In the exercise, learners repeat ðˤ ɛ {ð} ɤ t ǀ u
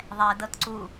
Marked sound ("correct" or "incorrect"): incorrect